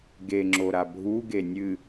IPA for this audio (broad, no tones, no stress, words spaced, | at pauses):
ɡeŋ͡ǁoɾa bʱuɡe nʲɨ